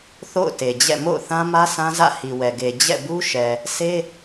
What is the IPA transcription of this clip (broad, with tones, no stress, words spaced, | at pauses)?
θo̰˦˨ʊ̯te˨d͡ʑɛ̰˦˨ mo̰˦˨ʊ̯θã˦mä˦ sã˦ zä̰˦˨hi˨wɛ˨ɡe˨ d͡ʑɛ̰˦˨bu˦ ʃɛ˨ | sʰe˦